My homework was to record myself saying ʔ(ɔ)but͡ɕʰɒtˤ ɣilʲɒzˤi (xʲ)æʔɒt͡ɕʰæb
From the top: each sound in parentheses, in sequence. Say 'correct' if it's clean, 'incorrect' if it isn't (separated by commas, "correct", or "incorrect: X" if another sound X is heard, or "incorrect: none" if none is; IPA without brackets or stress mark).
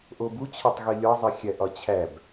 incorrect: o, correct